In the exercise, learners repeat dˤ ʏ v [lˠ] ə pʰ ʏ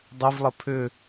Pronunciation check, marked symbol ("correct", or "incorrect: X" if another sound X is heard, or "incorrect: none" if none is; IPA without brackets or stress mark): correct